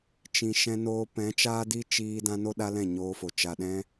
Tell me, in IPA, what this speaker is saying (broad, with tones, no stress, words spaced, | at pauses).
t͡ʃĩ˨ʃɛ̃˧noː˧ pɛ̃˨˦t͡ʃaː˦di˦ t͡ʃiː˧ dã˦no˦ɗa˦lɛ̃˦˨ ɲoː˧fo˨ t͡ʃa˨ɗɛ̃˧